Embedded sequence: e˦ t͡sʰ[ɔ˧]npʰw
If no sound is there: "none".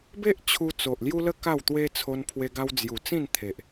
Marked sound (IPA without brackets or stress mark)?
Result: o˧